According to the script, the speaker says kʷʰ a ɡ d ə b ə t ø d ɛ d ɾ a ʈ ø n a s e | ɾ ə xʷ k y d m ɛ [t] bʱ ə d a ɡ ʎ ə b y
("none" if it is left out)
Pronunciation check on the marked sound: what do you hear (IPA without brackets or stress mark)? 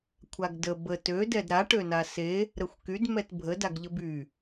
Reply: t